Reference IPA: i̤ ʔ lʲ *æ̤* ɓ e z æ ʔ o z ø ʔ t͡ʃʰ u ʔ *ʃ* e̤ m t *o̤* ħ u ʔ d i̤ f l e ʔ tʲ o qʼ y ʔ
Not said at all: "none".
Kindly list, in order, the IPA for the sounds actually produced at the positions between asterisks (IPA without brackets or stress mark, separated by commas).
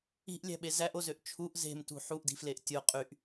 æ̤, z, ṳ